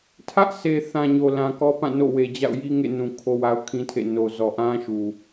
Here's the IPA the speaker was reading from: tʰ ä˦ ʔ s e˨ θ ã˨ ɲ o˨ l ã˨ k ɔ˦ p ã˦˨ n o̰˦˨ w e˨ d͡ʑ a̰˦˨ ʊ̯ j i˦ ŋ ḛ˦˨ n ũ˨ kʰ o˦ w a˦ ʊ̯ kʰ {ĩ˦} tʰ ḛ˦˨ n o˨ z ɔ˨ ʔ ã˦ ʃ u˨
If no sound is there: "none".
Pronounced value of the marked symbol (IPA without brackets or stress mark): ĩ˦